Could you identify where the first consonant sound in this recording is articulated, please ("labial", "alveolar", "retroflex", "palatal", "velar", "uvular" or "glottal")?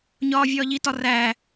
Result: palatal